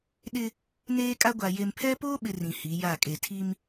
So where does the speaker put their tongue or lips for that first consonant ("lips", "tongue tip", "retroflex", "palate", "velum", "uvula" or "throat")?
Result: tongue tip